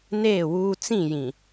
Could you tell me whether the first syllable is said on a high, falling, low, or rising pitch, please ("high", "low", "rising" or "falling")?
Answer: falling